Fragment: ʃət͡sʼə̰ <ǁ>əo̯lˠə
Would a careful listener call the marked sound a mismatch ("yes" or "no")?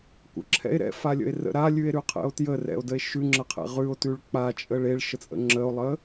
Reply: yes